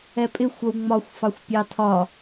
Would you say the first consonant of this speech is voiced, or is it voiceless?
voiceless